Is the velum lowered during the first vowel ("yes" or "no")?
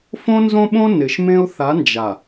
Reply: yes